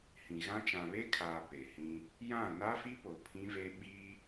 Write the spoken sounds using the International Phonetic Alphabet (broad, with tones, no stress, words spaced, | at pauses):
hĩ˨ɣã˦ t͡ʃã˨βe˦kʰaː˨ pe˨hĩ˦ | jã˦˨ na˦fi˦po˨ pʰĩ˦ve˦ ɓi˦